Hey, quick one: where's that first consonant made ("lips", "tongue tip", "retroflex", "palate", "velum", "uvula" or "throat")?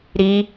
tongue tip